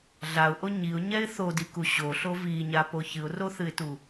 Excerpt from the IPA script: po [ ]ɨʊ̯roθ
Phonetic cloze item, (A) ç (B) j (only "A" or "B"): A